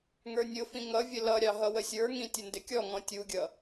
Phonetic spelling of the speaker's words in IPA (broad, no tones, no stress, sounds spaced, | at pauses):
ŋ ə˞ nʲ ʊ f ĩ ŋ ʌ vʲ ə l ʌ ɾʲ ɑ ɦ ʌ w ə sʲ ə˞ ŋ ĩ tʲ ə n d ɪ kʲ ɔ ŋ ɔ̃ tʲ u ɡʲ ʌ